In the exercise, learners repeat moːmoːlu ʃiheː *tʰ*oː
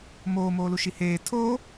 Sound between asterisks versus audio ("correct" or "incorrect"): correct